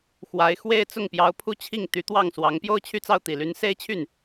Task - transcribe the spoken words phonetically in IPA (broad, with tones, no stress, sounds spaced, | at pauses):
x w a˧˥ ɪ̯ x w e˥ ɪ̯ t͡s ʊ˥˩ ŋ p j ɑ˧˥ ʊ̯ pʰ u˥˧ t͡ɕʰ i˥˩ ŋ t̪ y˧˥ t̪ w ɑ˥˩ ŋ s w ɑ˧˥ ŋ p j o˥˧ ʊ̯ t͡ɕʰ y˥˧ t͡s ɑ˥˩ ʊ̯ t̪ i˨˩ l y˧˥ n s e˥ ɪ̯ t͡ɕʰ y˥˩ n